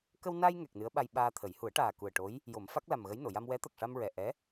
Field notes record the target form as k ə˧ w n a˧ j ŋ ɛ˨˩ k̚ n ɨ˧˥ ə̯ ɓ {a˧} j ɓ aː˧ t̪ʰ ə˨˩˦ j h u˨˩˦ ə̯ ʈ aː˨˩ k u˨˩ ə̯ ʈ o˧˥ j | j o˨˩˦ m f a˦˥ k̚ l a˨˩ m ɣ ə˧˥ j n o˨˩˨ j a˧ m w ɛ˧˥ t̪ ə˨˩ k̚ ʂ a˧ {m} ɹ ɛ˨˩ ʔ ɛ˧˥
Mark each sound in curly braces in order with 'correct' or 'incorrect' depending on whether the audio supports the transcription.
correct, correct

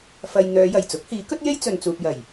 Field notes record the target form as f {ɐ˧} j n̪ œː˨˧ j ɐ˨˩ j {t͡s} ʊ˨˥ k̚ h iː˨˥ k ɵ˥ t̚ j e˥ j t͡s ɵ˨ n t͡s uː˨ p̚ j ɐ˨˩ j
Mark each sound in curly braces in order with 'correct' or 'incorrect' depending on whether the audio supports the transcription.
incorrect: ɐ˨, correct

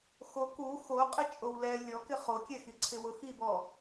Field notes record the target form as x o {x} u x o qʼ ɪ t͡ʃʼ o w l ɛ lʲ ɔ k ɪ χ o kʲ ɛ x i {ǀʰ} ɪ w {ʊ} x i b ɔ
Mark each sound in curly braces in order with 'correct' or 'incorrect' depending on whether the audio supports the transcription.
incorrect: k, correct, correct

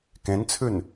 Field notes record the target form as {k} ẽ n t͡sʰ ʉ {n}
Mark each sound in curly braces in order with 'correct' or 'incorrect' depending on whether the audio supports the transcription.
correct, correct

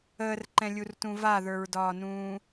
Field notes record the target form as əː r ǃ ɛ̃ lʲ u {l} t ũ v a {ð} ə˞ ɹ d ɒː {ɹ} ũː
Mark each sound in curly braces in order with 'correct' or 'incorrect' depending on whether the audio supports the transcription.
incorrect: r, correct, incorrect: n

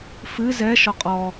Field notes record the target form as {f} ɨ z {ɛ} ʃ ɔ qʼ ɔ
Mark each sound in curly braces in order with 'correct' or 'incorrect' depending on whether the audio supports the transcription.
correct, correct

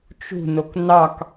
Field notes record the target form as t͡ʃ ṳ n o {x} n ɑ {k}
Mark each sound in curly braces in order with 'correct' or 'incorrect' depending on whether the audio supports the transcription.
incorrect: k, correct

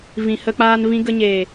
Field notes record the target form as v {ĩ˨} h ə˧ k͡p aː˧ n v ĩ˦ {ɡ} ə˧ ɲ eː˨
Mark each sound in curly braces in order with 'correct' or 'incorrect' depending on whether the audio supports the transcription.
correct, correct

